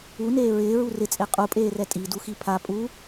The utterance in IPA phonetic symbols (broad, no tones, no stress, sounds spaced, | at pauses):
u n eː ɹ ɪː ɹ u r ɪ t͡sʼ e qʼ u pʼ eː r ɛ tʼ i d u x i pʰ a pʼ u